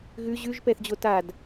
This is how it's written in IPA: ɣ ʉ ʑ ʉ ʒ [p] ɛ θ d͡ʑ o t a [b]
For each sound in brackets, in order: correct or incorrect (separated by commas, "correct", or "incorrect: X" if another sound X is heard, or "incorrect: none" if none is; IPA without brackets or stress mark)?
correct, incorrect: d